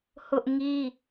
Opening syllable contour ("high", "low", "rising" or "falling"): high